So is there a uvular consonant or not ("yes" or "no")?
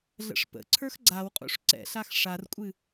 yes